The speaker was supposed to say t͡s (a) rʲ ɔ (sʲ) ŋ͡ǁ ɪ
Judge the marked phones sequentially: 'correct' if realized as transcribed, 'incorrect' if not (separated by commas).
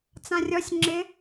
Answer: incorrect, correct